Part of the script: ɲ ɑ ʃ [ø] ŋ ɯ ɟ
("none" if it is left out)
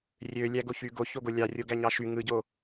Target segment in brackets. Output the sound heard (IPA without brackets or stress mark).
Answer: y